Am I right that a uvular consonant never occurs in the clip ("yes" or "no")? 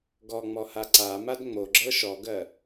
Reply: yes